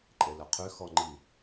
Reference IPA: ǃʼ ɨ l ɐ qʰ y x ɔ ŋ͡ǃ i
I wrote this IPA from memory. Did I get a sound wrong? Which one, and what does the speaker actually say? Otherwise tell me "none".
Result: ɨ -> e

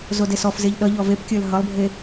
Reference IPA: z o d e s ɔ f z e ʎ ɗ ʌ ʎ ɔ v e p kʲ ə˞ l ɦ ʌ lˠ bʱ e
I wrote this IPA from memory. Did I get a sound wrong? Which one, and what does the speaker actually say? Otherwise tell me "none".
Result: none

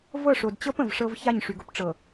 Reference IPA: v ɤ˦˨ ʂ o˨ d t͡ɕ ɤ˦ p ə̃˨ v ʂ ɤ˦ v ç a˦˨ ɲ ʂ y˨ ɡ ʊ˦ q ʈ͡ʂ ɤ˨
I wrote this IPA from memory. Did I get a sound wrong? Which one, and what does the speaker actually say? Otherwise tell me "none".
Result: q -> p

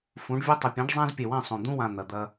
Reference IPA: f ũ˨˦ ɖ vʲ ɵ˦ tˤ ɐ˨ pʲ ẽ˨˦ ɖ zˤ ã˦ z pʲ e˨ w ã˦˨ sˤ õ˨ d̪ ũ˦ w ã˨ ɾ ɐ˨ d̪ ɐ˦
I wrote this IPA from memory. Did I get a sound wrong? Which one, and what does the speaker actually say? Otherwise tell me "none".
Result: ɾ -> n̪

